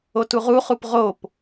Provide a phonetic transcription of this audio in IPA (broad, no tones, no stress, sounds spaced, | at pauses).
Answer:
o t u ʁ u χ u p ʁ o p